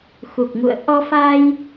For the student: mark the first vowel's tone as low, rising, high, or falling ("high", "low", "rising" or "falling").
low